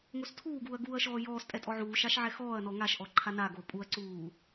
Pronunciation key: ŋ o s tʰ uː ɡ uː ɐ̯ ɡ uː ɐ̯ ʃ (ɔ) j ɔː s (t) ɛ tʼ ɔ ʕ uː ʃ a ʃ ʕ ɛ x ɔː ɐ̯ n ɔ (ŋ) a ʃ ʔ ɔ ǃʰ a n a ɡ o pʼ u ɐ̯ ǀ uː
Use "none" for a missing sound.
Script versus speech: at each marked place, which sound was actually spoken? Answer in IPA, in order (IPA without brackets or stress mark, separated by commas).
ɔː, tʼ, ŋ